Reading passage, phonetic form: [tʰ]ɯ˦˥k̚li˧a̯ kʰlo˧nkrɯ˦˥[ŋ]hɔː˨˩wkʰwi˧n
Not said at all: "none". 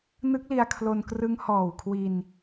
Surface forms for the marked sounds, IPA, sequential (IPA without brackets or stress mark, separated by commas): n, ŋ